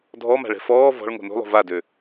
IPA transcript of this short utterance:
dʱ ɔ m a̤ ɭ ɛ̤ f ɔː v ɔ̤ ɭ ŋ o̤ n o̤ lˠ o̤ v a d ø

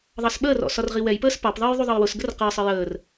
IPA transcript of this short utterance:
ðˤ ɑ s ɓ əː r ɔ̰ s ɒ r ʁ i w ɛ j p əː s p ɑ p ðˤ əː j ðˤ u ðˤ ʌ j w ʊ s ɡ ə r q ɜ sˤ ə j əː r

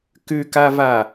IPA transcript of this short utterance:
k ʉ k a v a

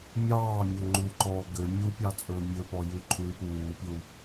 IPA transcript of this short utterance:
mʲ ɑː mʲ ɵ ŋ͡ǃ u ǃ ɔː ɡ ø mʲ u pʲ ɑ t͡sʼ ɵː mʲ ɵ p ɔ j ʉ ǃʰ ʉː p uː pʲ u

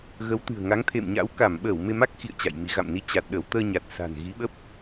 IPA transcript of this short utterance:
ɣ ə˨˦ w t̪ ɨ̤˨˩ ə̯ ŋ a˨˦ ŋ t̪ʰ ḛ˧˨ m ɲ a̰˧˥ w k a˧˩ m ɓ əː˧˩ w m e˧ m a˦˥ k̚ x ḭ˧˨ ə̯ t͡ɕ a̰˧˨ j m i˨˦ ɣ a̰˧˨ m n i˧ t͡ɕ a˨˩ t̚ ɗ ə˧˩ w t̪ əː˧ ɲ a˨˩ t̚ s a̤˨˩ n ɣ i˨˦ ɓ ə˦˥ p̚

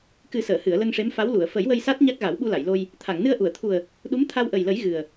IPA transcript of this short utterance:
k ɨ˨˩˦ s əː˨˩˨ h ɨ˨˩˨ ə̯ l ə˧ ŋ ʂ e˧˥ m f a˧˥ w l u˨˩˨ ə̯ f ə˨˩˦ j w ə˧ j s a˦˥ t̚ ɲ a˦˥ k̚ ɣ a˨˩˦ w ɓ u˧ l a˨˩˨ j l o˧ j | t̪ʰ a˨˩˨ ŋ n ɨ˧ ə̯ ʔ u˨˩˨ ə̯ t̪ʰ u˨˩ ə̯ | ɗ u˧˥ m t̪ʰ a˧ w ʔ ə˨˩ j l ə˨˩˦ j ɣ ɨ˨˩ ə̯

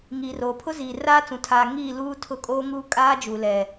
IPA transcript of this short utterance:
ŋ iː˨ r oː˨ pʰ ʊ˦ z iː˨ r aː˦ t͡s ũ˨ tʰ aː˨ ŋ iː˦˨ l uː˦ tʰ ʊ˦ kʼ oː˦ ŋ uː˦ kʼ aː˦ d͡ʒ uː˨ l ɛ˨

